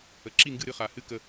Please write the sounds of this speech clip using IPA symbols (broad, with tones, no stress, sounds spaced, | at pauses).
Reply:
ə˩ ǁ i˥˩ ŋ ɡ ɨ˥˩ ɾ ɨ˥˩ χ a˩ h ɨ˥˩ k ə˧˩